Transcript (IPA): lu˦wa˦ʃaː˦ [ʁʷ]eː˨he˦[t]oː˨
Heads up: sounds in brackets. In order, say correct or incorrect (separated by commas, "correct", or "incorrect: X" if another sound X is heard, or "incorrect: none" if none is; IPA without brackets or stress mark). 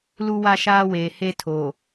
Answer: incorrect: w, incorrect: tʰ